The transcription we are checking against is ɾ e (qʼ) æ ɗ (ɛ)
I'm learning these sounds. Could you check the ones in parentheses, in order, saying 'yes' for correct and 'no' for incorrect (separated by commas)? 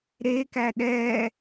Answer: no, yes